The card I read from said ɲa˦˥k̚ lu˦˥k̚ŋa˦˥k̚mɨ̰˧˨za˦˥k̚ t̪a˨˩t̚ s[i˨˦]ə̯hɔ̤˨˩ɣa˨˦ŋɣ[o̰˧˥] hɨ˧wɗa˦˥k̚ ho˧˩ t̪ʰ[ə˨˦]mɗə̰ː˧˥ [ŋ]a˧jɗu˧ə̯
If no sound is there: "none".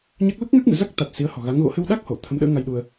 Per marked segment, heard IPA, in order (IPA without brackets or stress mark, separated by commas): i˨˦, o̰˧˥, ə˨˦, ŋ